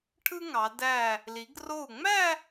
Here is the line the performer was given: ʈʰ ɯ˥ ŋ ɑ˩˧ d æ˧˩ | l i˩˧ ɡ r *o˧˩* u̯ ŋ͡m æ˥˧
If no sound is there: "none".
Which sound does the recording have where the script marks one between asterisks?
o˧˩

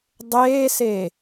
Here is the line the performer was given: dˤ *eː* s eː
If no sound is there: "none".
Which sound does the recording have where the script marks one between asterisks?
eː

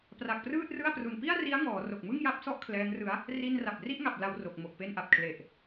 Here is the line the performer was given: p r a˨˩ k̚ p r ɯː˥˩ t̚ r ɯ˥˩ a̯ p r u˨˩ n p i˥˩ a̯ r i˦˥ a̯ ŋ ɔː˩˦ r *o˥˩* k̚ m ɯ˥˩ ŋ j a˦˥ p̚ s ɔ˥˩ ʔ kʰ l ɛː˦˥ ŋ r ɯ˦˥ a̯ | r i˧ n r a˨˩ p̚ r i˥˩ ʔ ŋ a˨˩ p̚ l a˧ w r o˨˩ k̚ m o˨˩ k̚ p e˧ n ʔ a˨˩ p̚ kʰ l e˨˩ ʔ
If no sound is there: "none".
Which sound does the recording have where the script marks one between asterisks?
o˨˩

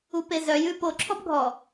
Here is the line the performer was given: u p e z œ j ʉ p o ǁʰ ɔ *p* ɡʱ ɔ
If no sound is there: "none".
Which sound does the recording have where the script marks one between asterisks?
p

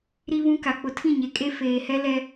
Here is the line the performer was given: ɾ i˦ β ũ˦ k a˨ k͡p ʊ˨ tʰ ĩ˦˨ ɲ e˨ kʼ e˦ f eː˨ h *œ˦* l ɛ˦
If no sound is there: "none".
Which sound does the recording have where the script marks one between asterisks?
ɛ˦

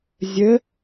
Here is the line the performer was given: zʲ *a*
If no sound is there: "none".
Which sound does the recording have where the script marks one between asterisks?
ə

